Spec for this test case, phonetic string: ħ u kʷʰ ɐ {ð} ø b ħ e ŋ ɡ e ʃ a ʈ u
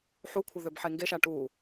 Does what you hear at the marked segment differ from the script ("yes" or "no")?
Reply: no